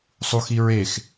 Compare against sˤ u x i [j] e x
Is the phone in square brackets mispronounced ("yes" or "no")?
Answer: yes